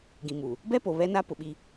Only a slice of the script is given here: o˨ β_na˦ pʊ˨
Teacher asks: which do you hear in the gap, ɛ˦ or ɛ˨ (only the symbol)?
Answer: ɛ˦